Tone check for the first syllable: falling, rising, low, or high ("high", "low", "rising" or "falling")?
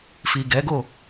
low